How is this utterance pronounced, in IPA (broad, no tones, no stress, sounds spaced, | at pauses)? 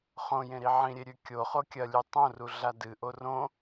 χ õ j ẽ ɾ i ʕ ĩ ɾʲ e ɾʲ ʉ kʲ o χ o kʲ ɐ lʲ ʉ tˤ õ r u ɮ a d ɨ ʔ o r õ